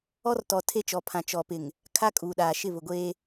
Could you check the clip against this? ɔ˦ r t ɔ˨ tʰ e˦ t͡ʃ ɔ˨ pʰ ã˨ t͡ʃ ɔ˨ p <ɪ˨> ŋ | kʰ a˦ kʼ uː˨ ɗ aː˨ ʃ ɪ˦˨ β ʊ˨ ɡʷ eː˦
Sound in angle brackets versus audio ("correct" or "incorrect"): correct